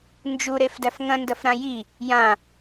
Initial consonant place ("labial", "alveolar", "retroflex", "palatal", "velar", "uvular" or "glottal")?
alveolar